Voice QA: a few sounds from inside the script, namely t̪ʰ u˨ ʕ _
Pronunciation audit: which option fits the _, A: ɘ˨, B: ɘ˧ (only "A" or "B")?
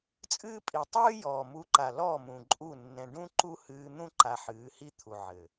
A